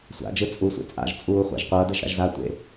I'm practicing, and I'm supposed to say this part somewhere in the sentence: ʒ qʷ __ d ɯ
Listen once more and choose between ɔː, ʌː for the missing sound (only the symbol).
ʌː